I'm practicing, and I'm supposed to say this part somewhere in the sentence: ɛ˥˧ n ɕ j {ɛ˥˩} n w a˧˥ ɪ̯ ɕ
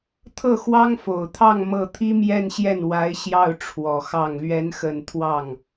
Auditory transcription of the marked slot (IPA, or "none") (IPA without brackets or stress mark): ɛ˥˩